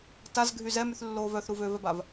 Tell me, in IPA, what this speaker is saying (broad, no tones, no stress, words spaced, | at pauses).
tazɡʱy zɛmyθlːoː vœθɾu vøvɛbav